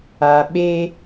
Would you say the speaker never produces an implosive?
no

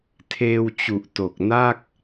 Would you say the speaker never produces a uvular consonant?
yes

